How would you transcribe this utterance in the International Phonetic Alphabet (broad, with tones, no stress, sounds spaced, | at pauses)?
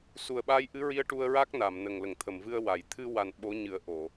s u˨˩ ə̯ ɓ a˧ j ʔ ɨ˧˥ ɹ i˧ ə̯ ʈ u˧ ə̯ ɹ a˦˥ k̚ n a˨˩˨ m n ə˨˩ ŋ l ə˨˩˨ ŋ t̪ʰ ə˨˩˨ m v ɨ˧ ə̯ w a˨˩˨ j t̪ʰ ɨ˧ w a˨˩ n ɓ o˧˥ ɲ ɨ˨˩˦ ə̯ ʔ o˨˩˨